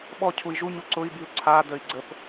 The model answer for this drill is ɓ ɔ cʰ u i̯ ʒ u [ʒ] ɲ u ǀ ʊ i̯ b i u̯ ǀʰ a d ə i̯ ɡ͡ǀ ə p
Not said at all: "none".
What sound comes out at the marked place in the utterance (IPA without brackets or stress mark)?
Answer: none